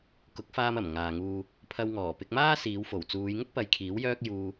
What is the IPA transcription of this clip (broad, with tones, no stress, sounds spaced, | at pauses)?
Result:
k ʊ˨˥ k̚ f aː˧ m ɐ˨˩ m ŋ aː˨ ŋ uː˧ | pʰ ɐ˧ w ŋ ɔː˨˩ p ɪ˧ k̚ m aː˥ s iː˨˧ w f o˨˩ w t͡s uː˨˧ j ŋ ʊ˥ k̚ p ɐ˨˧ j kʰ iː˨˥ w j œː˥ k̚ j uː˧